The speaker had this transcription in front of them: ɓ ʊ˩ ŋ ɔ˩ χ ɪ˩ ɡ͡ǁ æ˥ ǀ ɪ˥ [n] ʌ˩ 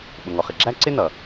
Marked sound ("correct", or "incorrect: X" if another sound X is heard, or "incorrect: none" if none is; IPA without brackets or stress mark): correct